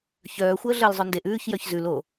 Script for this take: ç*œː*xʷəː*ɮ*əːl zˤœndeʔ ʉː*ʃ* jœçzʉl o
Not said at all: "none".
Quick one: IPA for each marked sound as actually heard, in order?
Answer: œː, ɮ, ç

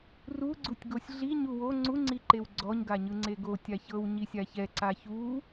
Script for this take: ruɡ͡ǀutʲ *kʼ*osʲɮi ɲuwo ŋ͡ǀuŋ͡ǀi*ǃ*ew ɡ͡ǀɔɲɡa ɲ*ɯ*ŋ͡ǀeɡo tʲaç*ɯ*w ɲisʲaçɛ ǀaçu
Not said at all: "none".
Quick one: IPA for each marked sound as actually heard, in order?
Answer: ɡ, ǃ, ɯ, ɤ

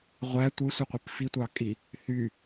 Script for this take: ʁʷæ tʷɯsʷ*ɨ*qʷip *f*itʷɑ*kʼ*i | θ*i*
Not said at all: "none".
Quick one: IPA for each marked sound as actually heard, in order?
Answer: i, f, kʼ, y

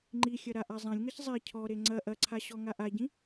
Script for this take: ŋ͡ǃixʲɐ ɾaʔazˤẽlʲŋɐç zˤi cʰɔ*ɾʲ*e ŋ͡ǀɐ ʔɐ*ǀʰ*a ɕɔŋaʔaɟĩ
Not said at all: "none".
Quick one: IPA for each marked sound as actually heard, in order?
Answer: ɾ, ǀʰ

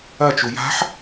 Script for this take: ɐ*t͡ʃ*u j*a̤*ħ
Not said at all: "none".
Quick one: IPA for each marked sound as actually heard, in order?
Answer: t͡ʃ, a̤

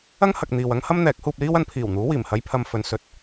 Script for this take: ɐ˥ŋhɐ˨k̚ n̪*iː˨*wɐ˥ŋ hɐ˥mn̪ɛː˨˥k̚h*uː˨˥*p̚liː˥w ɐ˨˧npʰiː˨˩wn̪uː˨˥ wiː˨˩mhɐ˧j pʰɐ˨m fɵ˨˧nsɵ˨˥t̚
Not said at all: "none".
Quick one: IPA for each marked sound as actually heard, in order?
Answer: iː˨, uː˧

